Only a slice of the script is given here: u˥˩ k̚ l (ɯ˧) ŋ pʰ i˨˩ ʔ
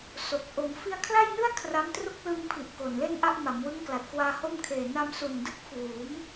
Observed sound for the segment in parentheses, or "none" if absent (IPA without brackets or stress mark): ɯ˧